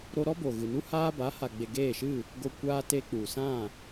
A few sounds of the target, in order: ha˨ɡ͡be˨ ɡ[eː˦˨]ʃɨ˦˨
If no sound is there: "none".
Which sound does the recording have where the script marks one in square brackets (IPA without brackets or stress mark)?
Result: eː˦˨